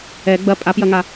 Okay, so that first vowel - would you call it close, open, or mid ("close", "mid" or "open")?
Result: mid